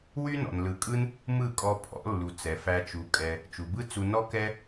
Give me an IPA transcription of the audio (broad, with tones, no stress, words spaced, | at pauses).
wy˦ nɔ̰˨nlɯ˨˦kʼɯ˦n | mɯ˦˨kʼɔ˧pʰɔ̰˨˦lːu˨ t͡sɛ˨fæ˧t͡ʃu˨˦kʼɛ˧ | t͡ʃu˨bɯ˦t͡su˧ nɔ˦kɛ˦